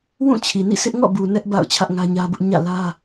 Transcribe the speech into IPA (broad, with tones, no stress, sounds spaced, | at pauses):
w ũ˦˨ t͡ɕʰ i˨ n ḭ˦˨ s ɪ˦ ʔ ŋ ɔ̰˦˨ b u˨ n ɛ˦ ʔ b a̰˦˨ ʊ̯ t͡ɕʰ ä˦ ʔ ŋ ä˦ ɲ ä˦ b ʊ˦ ʔ ɲ ä̰˦˨ l ä˦